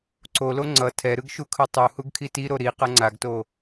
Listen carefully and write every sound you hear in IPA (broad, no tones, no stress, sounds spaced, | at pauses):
ǀ o l o ŋ͡ǀ ʌ tʰ ɛ ɾ ɯ ɡ ʃ u kʰ ɯ tˤ u h u ɡ kʰ i t i ɾ o ɾ i q ʌ ŋ͡ǀ a ɡ t o